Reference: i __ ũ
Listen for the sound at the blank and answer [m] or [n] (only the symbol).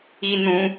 n